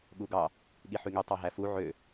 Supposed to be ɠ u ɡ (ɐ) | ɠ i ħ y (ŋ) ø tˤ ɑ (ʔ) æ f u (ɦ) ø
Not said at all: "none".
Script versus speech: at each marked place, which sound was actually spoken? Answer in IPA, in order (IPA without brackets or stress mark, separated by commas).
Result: ɑ, ŋ, ɦ, ʕ